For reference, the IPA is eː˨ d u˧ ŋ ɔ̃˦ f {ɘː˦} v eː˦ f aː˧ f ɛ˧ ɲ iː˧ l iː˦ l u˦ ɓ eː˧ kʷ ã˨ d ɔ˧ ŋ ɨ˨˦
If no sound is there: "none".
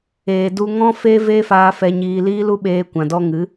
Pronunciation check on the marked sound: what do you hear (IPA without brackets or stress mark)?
eː˦